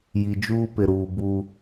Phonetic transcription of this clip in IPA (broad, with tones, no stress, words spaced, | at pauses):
ji˨d͡ʒuː˦pɪ˨ɾuː˨ bu˦